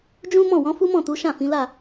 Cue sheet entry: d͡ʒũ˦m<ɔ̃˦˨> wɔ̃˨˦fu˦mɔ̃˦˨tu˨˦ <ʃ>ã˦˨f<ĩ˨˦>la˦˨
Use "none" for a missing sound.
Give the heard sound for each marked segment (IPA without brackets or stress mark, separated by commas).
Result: ɔ̃˦˨, ʃ, ĩ˨˦